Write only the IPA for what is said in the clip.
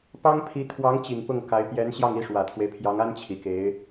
p ɑ˥ ŋ pʰ i˧˥ t̪ʰ w ɑ˧˥ ŋ t͡ɕ i˨˩ ŋ p ʊ˥˩ ŋ k a˧˥ ɪ̯ p j ɛ˧˥ n ɕ j ɑ˥˩ ŋ i˧˥ ʂ w ä˨˩ t̪ʰ w e˦ ɪ̯ pʰ j ɑ˧˥ ŋ a˥ n t͡ɕʰ i˨˩ k e˧˥ ɪ̯

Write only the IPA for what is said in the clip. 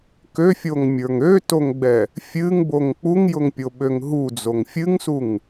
k ø fʲ o ŋ mʲ ə˞ ŋ ø t o ŋ ɡ͡b ɛ | fʲ ɨ ŋ b o ŋ k͡p u ŋ j ʊ ŋ pʲ o ɓ ø ŋ ɦ u d͡z o ŋ fʲ ɨ ŋ s u ŋ

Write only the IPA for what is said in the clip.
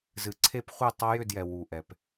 z ɨ˨ ǀʰ e˦ p χʷ ɨ˦˨ tˤ a˦ j ʏ˦˨ d j ɛ˨ w u˨ ʔ ɛ˨ p

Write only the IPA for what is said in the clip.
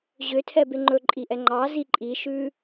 ʑ ø tʰ ɛ b e ŋ͡ǃ ɵ ǃʼ i ʔ ɛ ŋ͡ǃ ɑ z i ǃʼ i ʃ ʉ

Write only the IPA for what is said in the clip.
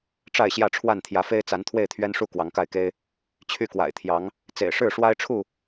ʈ͡ʂ a˥˨ ɪ̯ ɕ j ä˥˨ ʈ͡ʂʰ w a˥˨ n t̪ʰ j ä˨˦ f e˦ ɪ̯ t͡s a˨˦ n t̪ʰ w e˥˨ ɪ̯ t̪ʰ ɥ ɛ˦ n ʂ u˥˨ k w ɑ˨˦ ŋ k a˥˨ ɪ̯ k e˦ ɪ̯ | t͡ɕʰ y˥˨ k w a̰˨˩ ɪ̯ t̪ʰ j ɑ˨˦ ŋ | t͡s ḛ˨˩ ɪ̯ ʂ ɻ̩˥˨ ʂ w a˦ ɪ̯ ʈ͡ʂʰ u˥˨

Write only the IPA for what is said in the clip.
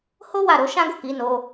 h o˦ w a˦˨ ɾ o˨˦ ʃ ã˦ ɡ o˦˨ k i˨˦ n o˧

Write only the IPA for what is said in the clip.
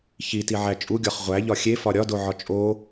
ç i t i ʕ æ t͡ʃʼ u ɡʲ ɒ χ ʁʷ æ ʎ ɒ xʲ e f ɒ ɾʲ ɒ d o ʕ ɒ t͡ʃʼ o

